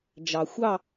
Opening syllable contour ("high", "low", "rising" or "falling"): low